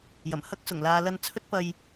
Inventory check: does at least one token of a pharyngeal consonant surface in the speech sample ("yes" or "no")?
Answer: no